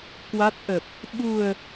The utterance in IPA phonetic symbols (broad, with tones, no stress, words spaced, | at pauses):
kwa˦˥t̚ʔə˨˩p̚ | ɓu˨˩ə̯